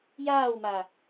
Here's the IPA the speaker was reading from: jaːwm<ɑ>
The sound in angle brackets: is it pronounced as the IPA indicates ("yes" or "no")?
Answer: no